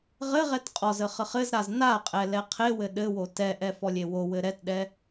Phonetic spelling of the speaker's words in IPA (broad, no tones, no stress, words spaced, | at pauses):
ʁɘʁɛt qʼɔzə χəχɘzɾaz naqʼɛ lɛqʰewɘ ɗɘwo tɛʔɛ fɔlʲewowɘ ɾɛtɗɛ